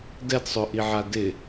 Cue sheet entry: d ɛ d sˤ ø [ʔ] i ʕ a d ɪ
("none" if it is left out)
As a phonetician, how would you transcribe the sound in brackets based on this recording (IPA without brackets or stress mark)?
ʔ